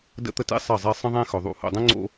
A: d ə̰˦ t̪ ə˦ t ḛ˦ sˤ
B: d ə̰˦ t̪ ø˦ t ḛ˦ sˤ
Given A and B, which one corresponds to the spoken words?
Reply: A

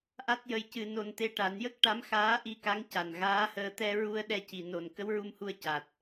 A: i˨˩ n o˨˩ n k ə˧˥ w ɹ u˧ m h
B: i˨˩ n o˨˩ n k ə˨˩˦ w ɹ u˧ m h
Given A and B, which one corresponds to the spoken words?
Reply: A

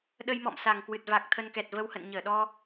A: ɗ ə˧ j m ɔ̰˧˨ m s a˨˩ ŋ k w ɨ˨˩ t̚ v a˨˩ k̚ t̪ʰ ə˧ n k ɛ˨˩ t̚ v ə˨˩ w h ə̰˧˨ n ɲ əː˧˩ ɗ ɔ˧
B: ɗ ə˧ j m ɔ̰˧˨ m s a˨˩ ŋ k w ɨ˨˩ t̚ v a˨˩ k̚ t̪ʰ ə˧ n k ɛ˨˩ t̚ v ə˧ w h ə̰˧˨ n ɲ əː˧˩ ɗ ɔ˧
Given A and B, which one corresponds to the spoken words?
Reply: B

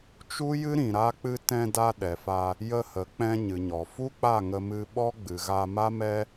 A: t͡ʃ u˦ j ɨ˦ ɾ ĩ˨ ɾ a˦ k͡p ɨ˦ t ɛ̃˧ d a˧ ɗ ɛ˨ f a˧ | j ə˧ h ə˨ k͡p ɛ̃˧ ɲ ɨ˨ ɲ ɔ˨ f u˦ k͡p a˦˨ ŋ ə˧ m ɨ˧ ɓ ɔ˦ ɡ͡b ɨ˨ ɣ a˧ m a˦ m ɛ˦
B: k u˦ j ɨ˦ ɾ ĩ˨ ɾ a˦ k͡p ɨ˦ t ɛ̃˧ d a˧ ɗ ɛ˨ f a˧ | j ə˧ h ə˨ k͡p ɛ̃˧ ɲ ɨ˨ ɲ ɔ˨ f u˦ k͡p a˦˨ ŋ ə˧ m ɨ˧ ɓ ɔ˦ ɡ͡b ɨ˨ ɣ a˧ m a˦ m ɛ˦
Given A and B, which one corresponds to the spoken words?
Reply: A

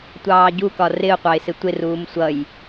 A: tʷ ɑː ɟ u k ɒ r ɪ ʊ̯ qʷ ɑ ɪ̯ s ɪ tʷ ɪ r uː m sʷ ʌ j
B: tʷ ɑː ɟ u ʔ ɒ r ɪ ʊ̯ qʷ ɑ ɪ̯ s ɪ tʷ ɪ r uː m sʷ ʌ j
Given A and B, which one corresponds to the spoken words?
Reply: A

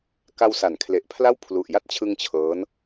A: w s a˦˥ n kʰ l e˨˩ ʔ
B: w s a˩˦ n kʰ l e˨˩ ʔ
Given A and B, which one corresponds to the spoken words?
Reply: B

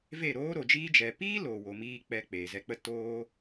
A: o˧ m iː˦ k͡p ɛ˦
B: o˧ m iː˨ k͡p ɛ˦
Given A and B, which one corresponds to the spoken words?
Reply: A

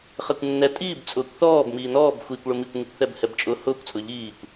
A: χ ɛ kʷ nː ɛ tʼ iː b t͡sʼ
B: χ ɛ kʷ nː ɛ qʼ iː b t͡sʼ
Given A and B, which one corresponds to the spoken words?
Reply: A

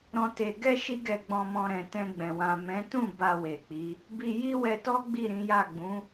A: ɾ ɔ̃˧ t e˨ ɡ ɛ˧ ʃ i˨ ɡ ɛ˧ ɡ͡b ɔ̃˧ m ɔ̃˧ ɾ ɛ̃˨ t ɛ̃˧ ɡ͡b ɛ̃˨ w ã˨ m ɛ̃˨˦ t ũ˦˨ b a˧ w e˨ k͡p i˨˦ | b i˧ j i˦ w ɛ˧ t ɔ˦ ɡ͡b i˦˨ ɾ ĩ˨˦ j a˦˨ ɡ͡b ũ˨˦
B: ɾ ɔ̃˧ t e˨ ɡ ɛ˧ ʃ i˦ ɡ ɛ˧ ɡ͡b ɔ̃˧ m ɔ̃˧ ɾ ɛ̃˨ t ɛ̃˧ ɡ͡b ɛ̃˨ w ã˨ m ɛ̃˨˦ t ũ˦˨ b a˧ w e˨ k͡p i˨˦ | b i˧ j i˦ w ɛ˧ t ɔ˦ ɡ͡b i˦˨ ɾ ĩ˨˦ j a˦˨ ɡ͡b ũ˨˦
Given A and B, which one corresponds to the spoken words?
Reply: B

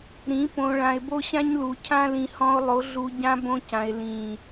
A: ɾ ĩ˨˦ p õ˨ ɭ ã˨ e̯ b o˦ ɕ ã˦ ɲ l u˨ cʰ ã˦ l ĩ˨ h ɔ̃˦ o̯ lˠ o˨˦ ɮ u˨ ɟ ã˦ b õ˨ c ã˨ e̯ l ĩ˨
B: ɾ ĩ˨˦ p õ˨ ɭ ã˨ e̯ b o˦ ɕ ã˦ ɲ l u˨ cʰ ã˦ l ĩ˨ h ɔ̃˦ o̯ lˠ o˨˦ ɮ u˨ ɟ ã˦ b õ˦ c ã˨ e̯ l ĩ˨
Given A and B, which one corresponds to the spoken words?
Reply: B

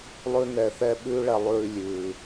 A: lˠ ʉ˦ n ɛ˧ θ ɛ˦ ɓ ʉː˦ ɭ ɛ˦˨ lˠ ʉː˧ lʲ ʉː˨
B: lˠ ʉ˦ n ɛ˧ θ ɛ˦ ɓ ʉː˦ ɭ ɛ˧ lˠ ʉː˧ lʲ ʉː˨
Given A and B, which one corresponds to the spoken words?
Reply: B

